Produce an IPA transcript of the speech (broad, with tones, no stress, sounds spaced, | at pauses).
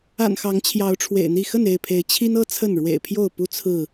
a̰˨˩ n x ɑ˨˦ ŋ t͡ɕʰ j ɑ˨˦ ʊ̯ ʈ͡ʂʰ w ḛ˨˩ ɪ̯ n̪ i˥˨ x ə˥˨ n e˥˨ ɪ̯ pʰ e˨˦ ɪ̯ t͡ɕʰ i˦ n ɤ˦ t͡sʰ ə˥˨ n ɻ w ḛ˨˩ ɪ̯ pʰ j o˥˨ ʊ̯ p u˦ t͡sʰ ɹ̩˥˨